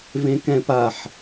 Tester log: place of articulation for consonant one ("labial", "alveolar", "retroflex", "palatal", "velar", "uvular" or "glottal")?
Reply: labial